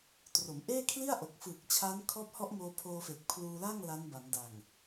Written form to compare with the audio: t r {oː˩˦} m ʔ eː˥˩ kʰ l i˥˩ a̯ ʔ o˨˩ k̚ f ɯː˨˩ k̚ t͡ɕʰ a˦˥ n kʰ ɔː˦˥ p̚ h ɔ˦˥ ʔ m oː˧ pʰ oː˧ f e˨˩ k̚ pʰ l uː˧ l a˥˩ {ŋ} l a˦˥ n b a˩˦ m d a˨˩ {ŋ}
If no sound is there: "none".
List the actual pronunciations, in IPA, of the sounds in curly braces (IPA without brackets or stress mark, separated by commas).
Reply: o˩˦, ŋ, ŋ